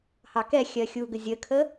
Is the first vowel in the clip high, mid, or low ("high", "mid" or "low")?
low